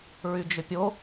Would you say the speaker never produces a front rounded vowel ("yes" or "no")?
no